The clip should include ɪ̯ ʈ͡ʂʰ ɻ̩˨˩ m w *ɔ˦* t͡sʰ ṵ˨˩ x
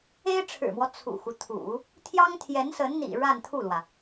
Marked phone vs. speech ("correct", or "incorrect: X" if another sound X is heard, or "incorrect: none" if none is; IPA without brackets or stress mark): correct